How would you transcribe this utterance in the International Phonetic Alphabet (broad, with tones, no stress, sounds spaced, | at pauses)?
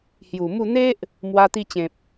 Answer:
h j u˨˩ m u˥˧ n̪ e˦ ʔ | m w a˧ t̪ i˧ t͡ɕ ẽ˨ p̚